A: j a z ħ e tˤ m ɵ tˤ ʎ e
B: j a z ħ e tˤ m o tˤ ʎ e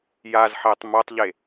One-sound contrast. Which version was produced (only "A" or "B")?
B